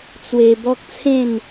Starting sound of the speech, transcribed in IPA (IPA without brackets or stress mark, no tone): t͡s